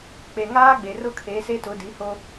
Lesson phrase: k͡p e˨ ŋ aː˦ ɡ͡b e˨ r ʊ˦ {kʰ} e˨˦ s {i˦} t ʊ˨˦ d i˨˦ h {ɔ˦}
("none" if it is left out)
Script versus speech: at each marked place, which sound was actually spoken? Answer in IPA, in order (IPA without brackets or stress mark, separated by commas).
kʰ, e˦, o˦